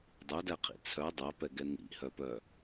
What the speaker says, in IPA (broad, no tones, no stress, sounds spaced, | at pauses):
dˤ œ d æ qʰ ḭ t͡sʰ œ dˤ œ p ɛ ɡ ɛ n ḭ h œ p œ